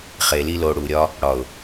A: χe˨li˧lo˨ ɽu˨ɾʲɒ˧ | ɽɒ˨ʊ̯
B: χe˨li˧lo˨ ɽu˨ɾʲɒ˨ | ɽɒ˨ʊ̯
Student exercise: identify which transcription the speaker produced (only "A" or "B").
A